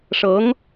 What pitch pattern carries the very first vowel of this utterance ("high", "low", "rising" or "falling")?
rising